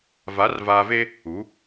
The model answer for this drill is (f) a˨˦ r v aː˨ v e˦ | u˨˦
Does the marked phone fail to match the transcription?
yes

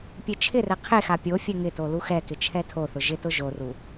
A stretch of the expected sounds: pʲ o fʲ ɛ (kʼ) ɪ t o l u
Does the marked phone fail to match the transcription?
yes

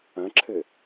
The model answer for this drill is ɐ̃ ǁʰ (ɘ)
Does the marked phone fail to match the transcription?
no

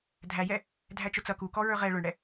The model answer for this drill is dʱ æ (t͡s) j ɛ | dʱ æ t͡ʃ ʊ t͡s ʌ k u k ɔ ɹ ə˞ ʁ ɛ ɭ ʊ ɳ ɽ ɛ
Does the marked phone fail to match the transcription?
yes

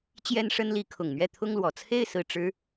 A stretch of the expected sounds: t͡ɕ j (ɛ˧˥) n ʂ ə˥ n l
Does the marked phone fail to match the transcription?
yes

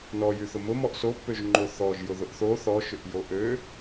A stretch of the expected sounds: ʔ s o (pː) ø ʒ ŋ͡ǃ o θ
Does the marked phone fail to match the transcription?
no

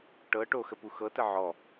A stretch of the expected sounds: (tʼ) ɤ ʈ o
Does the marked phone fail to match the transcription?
yes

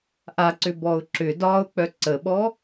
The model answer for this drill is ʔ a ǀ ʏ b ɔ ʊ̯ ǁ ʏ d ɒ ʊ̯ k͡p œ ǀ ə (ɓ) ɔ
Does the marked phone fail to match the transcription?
no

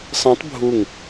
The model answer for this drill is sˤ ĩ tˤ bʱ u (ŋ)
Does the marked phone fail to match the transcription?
no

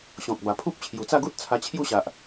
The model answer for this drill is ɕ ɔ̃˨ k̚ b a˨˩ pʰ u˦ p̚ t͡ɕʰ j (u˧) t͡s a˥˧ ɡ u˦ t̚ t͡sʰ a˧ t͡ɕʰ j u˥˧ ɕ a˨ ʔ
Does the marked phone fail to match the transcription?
yes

